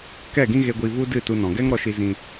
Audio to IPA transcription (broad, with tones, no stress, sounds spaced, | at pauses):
k ɛ˦˨ ɡ ĩ˦ ɣ e˧ ɡʷ i˧ v u˦ d ɨ˦˨ t u˧ n ɔ̃˨ ɡ ɛ˦ ŋ ɾ ɔ˧ ʃ i˧ z ĩ˧